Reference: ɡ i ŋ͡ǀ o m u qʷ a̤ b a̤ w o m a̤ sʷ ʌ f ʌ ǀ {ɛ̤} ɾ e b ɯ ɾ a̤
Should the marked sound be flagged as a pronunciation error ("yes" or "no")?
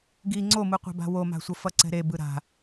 no